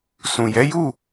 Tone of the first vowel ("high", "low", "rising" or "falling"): low